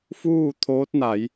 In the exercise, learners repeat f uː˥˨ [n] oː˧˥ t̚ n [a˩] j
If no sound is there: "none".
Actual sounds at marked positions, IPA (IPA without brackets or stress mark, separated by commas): t̪ʰ, a˩˧